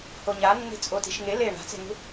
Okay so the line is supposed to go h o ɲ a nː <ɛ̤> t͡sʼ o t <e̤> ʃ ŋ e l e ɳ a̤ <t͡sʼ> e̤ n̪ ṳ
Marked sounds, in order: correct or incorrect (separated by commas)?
incorrect, incorrect, incorrect